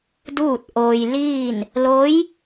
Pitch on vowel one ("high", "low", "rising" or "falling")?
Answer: falling